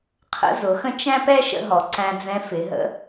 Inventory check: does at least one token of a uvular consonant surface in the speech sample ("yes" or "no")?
yes